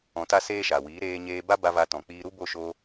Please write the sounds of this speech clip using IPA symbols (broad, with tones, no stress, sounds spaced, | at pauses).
ɔ̃˧ t a˦ s eː˦ ʃ a˨ w iː˨˦ ɾ eː˧ ɲ eː˧ b a˦ b a˧ v a˧ t ɔ̃˨ k͡p iː˧ ɾ u˦ b o˦˨ ʃ o˧